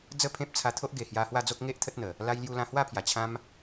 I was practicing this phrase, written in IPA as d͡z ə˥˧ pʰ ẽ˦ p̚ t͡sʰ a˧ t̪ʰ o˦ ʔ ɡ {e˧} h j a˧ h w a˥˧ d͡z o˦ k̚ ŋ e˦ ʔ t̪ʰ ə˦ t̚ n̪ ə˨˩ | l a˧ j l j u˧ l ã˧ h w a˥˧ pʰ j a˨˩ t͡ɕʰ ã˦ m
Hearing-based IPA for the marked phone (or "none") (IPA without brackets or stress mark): e˨˩